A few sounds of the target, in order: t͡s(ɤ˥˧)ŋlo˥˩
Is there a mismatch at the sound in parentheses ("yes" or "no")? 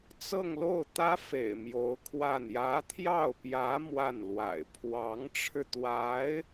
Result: no